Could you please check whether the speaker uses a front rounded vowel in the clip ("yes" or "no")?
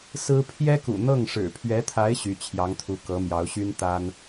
yes